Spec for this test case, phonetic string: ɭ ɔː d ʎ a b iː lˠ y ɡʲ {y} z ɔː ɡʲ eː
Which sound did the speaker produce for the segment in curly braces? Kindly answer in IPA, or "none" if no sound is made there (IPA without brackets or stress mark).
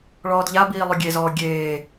e